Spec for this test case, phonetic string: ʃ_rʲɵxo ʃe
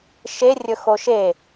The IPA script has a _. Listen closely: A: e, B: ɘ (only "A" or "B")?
A